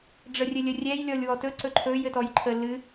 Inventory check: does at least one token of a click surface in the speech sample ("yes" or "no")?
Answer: yes